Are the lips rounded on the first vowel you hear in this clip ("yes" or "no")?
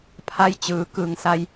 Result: no